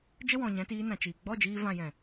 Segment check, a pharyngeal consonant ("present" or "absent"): absent